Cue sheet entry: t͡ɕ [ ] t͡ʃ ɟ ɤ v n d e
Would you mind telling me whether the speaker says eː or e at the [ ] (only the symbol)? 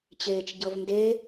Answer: eː